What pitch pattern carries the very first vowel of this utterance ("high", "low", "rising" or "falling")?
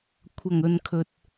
low